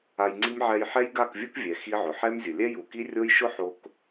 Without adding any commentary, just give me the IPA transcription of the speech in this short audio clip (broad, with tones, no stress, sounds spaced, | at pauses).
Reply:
a˧ j ŋ͡ǀ i˦ m ʕ ɛ˧ j ħ ɛ˦ j ɡ a˦˨ k vʲ u˦ k vʲ ɛ˨ x i˦ ʕ ʊ˨ ħ ɛ˦ m zʲ ʊ˨ lʲ ɛ˦ j u˨ k i˦ rʲ o˦ j ʃ ʊ˦ ħ o˧ k